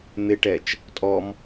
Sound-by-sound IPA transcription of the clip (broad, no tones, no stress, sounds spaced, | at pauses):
n̪ ɪ ʈ ɛ t͡ʃ | tʼ ɔ m